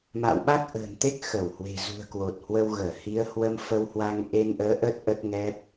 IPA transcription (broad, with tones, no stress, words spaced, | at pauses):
ma̰ː˧˨wɓa˦˥k̚ʔə̤ː˨˩nt̪e˦˥k̚ xə˧˩whwe̤˨˩ zṳ˨˩ə̯kwo˨˩t̚hwə˧w ɣəː˧˩hi˨˦ə̯ hwə˧mfə˧whwa˧ŋ ʔe˧nʔəː˨˦ ʔə˦˥t̚ ʔə˦˥t̚ŋɛ˦˥p̚